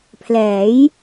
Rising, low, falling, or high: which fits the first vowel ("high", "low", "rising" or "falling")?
rising